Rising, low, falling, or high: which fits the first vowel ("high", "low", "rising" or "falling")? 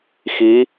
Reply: rising